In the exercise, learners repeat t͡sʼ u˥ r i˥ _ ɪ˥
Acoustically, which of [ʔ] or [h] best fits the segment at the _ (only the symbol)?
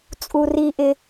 ʔ